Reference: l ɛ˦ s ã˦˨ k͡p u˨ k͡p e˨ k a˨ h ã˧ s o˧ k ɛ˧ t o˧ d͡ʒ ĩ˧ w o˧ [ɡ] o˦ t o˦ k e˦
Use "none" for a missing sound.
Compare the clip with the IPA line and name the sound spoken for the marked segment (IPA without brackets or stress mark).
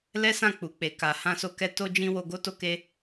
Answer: ɡ